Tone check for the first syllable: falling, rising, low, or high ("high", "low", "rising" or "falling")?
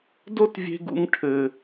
high